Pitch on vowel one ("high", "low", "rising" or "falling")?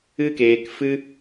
high